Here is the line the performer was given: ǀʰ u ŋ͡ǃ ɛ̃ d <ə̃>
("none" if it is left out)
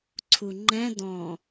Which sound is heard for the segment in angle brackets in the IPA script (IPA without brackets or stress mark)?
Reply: ɔ̃